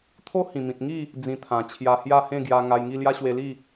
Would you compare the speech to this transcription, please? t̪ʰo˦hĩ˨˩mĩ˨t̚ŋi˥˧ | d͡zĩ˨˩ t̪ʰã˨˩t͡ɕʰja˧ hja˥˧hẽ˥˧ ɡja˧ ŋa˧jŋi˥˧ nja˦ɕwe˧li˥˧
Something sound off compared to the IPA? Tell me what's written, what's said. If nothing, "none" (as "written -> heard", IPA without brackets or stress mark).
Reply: n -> l